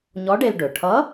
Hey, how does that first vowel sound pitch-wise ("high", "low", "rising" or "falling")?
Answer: rising